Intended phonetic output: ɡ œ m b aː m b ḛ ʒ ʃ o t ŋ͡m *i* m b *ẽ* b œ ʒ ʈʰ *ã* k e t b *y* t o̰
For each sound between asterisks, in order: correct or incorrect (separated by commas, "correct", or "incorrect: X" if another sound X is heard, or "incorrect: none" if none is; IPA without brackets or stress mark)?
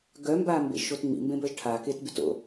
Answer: incorrect: ḭ, correct, incorrect: a, correct